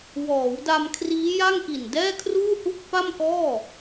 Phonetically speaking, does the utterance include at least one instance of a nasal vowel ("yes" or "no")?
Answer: no